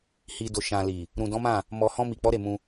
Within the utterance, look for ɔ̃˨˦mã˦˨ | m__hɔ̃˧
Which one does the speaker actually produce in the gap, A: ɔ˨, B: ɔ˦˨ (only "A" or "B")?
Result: A